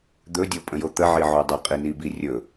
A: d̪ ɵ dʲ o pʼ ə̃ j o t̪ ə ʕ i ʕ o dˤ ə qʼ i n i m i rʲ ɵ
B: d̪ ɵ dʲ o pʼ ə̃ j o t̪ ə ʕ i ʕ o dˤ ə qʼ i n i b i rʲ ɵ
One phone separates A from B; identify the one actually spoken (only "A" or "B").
B